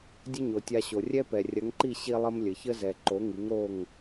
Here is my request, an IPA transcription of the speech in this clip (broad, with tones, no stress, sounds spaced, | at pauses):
dʲ ə˦ ɲ o˨ tʲ a˧ ɕ o˨ rʲ ɛ˦ p ɛ˨ rʲ ɐ˨˦ ŋ ǃ i˦˨ ɕ i˦ lˠ ə˦ m lʲ ə˨ ç ə˦ z ɛ˨ ǃ o˨˦ ŋ i˨˦ ŋ ɾ o˦˨ ŋ